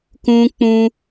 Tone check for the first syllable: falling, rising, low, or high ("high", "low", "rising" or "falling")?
high